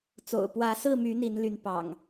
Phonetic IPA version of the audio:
t͡s o̰˨˩ ʊ̯ p w ä˨˦ s ɹ̩˥˨ m y˨˦ n̪ i˨˦ n l y˨˦ n p ɑ̰˨˩ ŋ

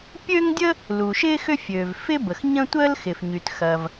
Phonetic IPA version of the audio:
pʲ ø˥ ŋ dʲ ə˥ | l u˩ ʃ ɪː˥ x ʏ˥ fʲ ø˩ v f ɪ˥ b ə˩ x ɲ ə̃˥ tʷ əː˥ l x ɪ˩ f ɲ y˩ t x ɐ˩ v

